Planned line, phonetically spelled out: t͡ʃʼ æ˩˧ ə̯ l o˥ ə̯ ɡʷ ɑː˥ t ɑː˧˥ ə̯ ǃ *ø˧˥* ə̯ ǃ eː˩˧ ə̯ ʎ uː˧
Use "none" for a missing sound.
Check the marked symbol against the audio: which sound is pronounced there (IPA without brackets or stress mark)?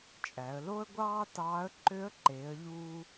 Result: ø˧˥